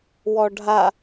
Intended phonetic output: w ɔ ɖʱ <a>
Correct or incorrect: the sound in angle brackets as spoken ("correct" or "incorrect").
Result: correct